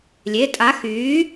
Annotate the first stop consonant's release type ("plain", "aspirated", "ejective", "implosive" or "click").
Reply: ejective